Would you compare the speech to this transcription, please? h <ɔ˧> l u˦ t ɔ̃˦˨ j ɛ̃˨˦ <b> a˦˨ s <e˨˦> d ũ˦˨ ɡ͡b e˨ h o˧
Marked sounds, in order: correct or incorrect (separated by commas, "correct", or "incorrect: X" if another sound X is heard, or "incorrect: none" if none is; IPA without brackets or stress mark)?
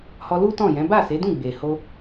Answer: correct, correct, correct